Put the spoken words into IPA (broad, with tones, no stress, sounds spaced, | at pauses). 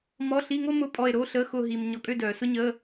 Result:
m ɔ˧˥˧ ɬ i˧˥˧ ŋ o˥ m ʊ˧˥˧ pʼ ɔ˦˨ e̯ ɾ o˧˥˧ ɬ əː˧˥˧ x ʊː˦˨ ɦ iː˨ m ɲ ɔ˨ kʼ ø˦˨ d œː˨ s ʊ˥ ɲ əː˧˥˧